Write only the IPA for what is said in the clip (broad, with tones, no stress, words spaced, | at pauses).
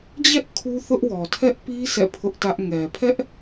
d͡ʑɛ˦ʔ kʰu˦θʊ˦ʔwɔ˨ tʰɛ˦ʔpi˦ sɛ̰˦˨pʰʊ˦ʔtä˦ʔ ŋɛ˨pʰɛ˦ʔ